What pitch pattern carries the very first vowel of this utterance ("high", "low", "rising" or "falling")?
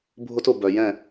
high